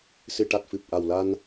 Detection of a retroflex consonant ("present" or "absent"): present